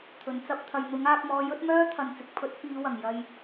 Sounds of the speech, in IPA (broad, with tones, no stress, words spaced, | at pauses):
t̪ʰɵ˨nt͡sɐ˥p̚t̪ʰɐ˧j n̪ʊ˨˥ŋaː˧k̚mɔː˧ jɵ˥t̚ mœː˥t̪ʰɐ˨nt͡sɪ˨k̚ pʰɵ˨˥t̚fiː˨˧wɐ˨˩ŋ jɐ˨j